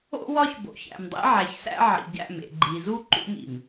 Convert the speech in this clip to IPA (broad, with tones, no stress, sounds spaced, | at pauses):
o̰˦ w ɒ˦ ç b o̰˨ ç æ̰˨ m dˤ ḛ˦ ʕ æ˨ ç s æ̰˦ ʕ ḭ˨ ɟ æ̰˦˨ m ḛ˨ ɡ͡ǃ i˨ z u˦ ǃ ṵ˦ m ḭ˨ m